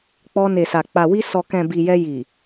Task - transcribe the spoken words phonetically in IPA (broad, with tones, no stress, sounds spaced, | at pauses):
k͡p ɔ˧ n e˨ s a˨ k͡p a˨ w i˧ s ɔ˨ k ɛ̃˨ b i˨ j ɛ˧ j i˨